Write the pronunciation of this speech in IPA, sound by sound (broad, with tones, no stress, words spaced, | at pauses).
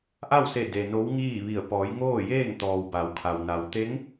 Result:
ʔa˥˨wse˧˩ de˩ no˧˥wŋiː˥˨ʋi˧˩ə̯ pɔː˩˧jŋoː˥˨jeː˥˨ŋt̪ɔː˩w ba˩˧wkʰa˩wna˩w t̪e˧˥ŋ